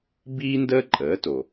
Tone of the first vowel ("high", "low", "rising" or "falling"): high